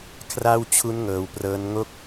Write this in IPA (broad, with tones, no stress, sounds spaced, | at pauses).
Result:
kʰ r a˥˩ w t͡ɕʰ u˦˥ n ŋ ɤː˧ w p r ɤː˦˥ n ŋ o˥˩ k̚